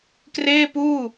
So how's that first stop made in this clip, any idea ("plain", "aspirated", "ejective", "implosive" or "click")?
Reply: plain